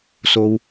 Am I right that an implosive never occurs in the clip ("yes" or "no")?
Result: yes